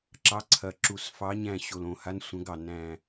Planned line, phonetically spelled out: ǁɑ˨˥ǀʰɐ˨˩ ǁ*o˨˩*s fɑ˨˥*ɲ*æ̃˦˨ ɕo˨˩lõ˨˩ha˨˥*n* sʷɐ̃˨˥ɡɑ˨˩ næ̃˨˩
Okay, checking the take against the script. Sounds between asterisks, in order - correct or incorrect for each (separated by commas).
incorrect, correct, correct